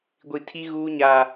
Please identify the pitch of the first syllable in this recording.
high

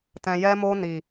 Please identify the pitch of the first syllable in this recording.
low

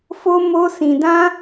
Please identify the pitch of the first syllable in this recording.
high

